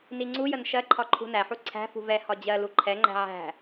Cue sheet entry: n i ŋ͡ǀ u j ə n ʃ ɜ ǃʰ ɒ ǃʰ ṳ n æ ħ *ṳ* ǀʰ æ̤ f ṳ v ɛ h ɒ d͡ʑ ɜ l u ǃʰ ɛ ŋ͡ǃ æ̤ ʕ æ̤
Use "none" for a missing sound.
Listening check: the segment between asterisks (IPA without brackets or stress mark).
u